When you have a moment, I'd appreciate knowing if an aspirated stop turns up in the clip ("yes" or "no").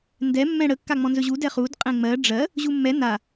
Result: no